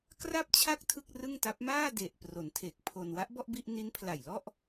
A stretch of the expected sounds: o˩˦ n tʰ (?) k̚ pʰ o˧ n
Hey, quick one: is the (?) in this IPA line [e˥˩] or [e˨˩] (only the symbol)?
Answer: e˨˩